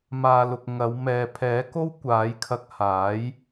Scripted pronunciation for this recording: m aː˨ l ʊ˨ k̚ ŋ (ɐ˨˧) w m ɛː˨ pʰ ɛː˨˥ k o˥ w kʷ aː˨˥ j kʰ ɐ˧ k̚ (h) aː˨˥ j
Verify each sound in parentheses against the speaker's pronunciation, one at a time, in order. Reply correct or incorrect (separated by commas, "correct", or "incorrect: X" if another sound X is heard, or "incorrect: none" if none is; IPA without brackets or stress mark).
correct, correct